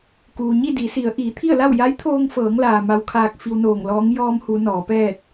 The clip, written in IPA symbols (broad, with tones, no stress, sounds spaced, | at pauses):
k uː˩ ɲ i˥˨ d i˩˧ s i˩˧ ə̯ ʔ iː˩˧ t̪ʰ i˥˨ ə̯ l a˥˨ w j a˧˥ j t̪ʰ oː˧ ŋ f ɤː˩˧ ŋ l aː˩ m a˧˥ w kʰ aː˧ k̚ f i˧ w n oː˧˩ ŋ l ɔː˧˥ ŋ j ɔː˧ m h u˩˧ n ɔː˩˧ p ɛː˥˨ t̚